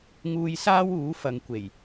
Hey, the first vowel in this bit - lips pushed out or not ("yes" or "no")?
yes